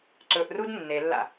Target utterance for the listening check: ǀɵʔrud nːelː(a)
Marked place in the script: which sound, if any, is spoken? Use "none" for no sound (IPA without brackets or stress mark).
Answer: a̰